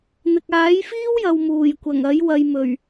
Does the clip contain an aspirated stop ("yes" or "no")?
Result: no